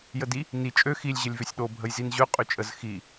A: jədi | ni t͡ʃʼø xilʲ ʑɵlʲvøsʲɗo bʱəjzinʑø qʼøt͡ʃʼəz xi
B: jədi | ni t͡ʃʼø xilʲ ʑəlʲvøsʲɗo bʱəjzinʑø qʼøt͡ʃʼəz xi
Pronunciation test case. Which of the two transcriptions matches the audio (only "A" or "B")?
B